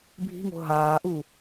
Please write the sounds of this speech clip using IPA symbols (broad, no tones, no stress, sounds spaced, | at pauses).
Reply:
bʱ i̤ ŋ o̤ ɦ aː ʔ u